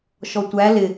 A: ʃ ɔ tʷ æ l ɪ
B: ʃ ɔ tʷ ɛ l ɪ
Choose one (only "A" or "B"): A